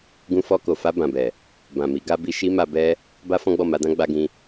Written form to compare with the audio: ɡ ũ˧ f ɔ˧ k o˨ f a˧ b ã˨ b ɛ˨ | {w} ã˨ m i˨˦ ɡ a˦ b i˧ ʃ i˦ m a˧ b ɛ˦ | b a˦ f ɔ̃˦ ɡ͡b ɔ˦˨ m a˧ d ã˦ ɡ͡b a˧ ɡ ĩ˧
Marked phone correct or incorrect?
incorrect